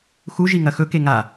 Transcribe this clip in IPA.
x u ʒ i ŋ ɐ x ɵ k e ŋ a

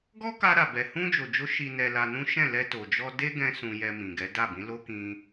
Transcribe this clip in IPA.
ɡ ɔ˦ k a˧ ɾ a˨ b ɛ˨ h ũ˧ d͡ʒ o˨ d͡ʒ o˨˦ ʃ i˧ n ɛ˧ l a˧ n ũ˦ ʃ ɛ̃˦˨ l ɛ˧ t o˨ d͡ʒ ɔ˧ d e˦ ɡ ɛ̃˧ s ũ˧ j ɛ˧ m ĩ˨ ɡ ɛ˨˦ d a˦˨ b ĩ˨˦ l o˦ k ĩ˧

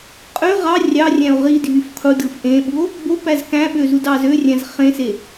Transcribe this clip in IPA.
qʼ ø ʁ ɑ rʲ ɑ rʲ æ̃ o̯ ʁ i dʱ y f qʰ u d ɯ f ʔ ẽ ɓ u o̯ | b o p æ z k æ̃ ɓ ø z u d ɑ z ø rʲ æ̃ z χ ẽ s e

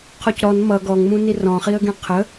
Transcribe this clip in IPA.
qʰ ɔ c ɾ ɔ n m ʌ ɡ ɔ ŋ m ũ n i r ɔ̃ χ i ə̯ ɡ ẽ qʰ ə

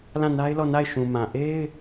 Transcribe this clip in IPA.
l ã˦˨ n a˦ ɪ̯ l ɔ˦˨ n a˦˨ ɪ̯ ʃ ũ˨ m ã˨ ʔ e˦ ɪ̯

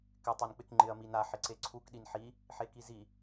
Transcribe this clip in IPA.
k ɪ tˤ e n k͡p ɪ k ŋ͡ǃ ɪ ɐ̯ m i n a ħ ɪ ǀ e ǀʰ u k ɗ i n ħ i | ħ e k i z i

